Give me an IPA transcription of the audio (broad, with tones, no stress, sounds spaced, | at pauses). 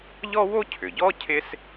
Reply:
ʎ ɔ˥ w o˥ cʰ ʏ˩ ɟ ɔ˥ cʰ ɪ˥ s